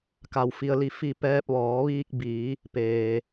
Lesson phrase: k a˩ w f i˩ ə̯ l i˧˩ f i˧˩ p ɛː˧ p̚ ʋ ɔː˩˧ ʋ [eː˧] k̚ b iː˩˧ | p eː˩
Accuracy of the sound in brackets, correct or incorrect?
incorrect